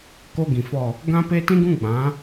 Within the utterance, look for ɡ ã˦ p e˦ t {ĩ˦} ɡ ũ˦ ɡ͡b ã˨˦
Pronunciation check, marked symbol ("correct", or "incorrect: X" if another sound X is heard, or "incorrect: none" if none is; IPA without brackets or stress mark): correct